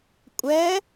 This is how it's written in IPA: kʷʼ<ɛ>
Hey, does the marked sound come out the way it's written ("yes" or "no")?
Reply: yes